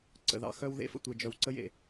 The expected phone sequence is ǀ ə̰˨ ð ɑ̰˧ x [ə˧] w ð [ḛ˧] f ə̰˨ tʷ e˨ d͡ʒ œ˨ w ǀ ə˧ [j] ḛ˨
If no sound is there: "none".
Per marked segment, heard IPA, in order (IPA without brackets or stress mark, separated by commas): œ˧, ḛ˧, j